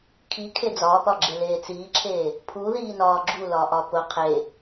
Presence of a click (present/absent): present